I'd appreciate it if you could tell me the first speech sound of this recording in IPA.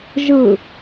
ʒ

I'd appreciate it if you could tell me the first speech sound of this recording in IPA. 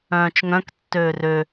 œ̃ː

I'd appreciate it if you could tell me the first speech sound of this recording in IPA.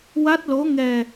w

